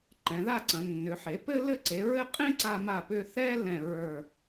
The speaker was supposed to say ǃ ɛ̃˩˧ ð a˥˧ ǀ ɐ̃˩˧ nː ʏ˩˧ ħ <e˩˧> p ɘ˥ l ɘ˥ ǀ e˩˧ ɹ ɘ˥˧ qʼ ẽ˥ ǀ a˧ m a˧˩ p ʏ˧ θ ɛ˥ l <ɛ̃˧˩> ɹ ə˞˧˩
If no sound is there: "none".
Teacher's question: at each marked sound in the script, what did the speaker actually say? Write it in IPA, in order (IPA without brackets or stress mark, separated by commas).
e˩˧, ɛ̃˧˩